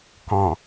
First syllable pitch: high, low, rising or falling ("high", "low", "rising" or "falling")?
low